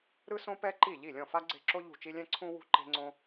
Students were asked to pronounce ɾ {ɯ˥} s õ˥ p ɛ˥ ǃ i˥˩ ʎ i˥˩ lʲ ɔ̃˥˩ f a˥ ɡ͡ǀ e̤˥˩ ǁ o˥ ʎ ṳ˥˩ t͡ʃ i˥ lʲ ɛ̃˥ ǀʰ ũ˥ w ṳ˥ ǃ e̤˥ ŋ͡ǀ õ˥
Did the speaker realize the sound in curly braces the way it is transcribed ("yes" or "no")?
yes